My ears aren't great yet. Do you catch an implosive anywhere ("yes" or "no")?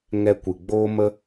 no